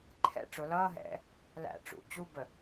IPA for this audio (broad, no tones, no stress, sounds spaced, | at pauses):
ǃʰ ɛ̰ ʈ͡ʂ ʊ l ʌː ɦ ɛ̰ | l æ̰ ʈ͡ʂ ṵ t͡ɕ u b ə